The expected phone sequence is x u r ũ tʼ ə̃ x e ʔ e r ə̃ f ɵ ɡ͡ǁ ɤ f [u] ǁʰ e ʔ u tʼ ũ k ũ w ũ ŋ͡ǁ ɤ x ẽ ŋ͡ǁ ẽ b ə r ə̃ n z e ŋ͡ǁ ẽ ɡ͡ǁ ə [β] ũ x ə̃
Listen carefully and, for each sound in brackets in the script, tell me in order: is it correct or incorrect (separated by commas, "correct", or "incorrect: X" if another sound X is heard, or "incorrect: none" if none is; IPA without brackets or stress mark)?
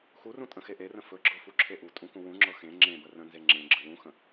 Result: correct, incorrect: w